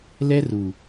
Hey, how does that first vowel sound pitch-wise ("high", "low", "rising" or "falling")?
high